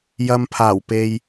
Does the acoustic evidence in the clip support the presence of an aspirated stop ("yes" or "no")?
yes